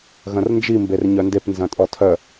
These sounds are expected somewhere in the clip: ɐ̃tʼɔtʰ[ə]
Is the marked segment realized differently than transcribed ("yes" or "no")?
yes